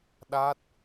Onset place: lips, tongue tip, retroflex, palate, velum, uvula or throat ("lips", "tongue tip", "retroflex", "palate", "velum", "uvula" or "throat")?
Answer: tongue tip